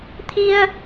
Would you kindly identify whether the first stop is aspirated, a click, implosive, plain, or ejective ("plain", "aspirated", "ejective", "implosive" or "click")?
aspirated